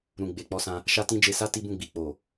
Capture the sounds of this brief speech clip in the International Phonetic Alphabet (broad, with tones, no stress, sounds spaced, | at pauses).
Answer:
ɾ ũ˨ ɡ͡b e˨ k͡p ɔ˧ s ã˧ | ʃ a˦ t ĩ˦ d͡ʒ e˧ s a˦ t i˦ b ũ˦˨ ɡ͡b i˨ k͡p o˨